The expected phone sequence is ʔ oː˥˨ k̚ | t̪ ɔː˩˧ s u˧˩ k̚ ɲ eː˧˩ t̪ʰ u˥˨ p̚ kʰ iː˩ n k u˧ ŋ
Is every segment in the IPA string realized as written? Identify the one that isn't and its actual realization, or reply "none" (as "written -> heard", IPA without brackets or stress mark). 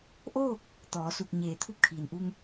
k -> ʔ